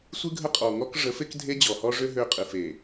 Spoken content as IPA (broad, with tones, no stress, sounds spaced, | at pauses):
sʷ ɨ˦ ɡʱ ə˦ qʼ ɔ˨ ŋ ɔ˦ k ʐ ə˨˦ f e˦ k dʱ e˦ d͡ʑ ɔ˨ h ɔ˦ ʐ ø˦ ɦ ø˦ qʼ ɨ˨ f e˨